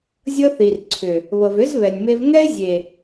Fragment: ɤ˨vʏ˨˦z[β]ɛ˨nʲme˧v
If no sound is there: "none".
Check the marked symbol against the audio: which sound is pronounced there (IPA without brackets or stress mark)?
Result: β